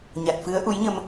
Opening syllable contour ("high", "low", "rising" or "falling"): low